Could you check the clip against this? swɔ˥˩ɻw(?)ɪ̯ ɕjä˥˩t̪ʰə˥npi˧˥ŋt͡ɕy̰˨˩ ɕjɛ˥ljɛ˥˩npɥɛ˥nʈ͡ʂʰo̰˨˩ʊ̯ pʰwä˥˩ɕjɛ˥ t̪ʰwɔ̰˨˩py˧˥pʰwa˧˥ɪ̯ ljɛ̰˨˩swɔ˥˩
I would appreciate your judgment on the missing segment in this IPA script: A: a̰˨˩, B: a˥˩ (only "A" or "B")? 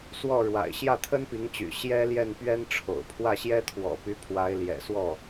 A